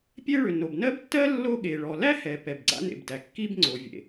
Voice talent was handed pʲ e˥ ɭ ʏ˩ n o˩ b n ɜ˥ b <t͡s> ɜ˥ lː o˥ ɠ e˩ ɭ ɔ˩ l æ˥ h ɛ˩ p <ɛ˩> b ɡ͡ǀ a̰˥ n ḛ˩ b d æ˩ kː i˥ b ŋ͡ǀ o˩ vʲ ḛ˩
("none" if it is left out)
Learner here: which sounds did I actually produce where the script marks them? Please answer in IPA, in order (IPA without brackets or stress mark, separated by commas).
tː, ɛ˩